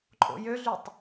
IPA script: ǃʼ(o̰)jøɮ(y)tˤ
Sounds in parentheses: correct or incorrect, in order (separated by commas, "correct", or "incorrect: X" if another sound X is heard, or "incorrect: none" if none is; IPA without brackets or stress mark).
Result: correct, correct